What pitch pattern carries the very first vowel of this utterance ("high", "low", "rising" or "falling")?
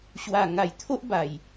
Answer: low